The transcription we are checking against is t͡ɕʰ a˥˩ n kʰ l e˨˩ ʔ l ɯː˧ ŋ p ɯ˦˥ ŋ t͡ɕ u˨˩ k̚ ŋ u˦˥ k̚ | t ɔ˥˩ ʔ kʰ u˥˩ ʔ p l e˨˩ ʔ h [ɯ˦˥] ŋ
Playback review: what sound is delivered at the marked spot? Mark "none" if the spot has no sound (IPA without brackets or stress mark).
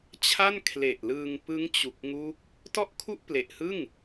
ɯ˥˩